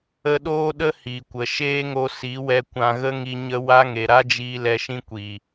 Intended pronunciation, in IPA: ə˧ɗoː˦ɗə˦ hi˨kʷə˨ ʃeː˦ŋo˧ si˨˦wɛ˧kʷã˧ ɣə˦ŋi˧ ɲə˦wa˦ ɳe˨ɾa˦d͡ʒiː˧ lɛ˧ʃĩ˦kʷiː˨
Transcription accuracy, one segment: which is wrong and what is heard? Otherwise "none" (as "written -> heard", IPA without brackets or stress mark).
ɳ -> ŋ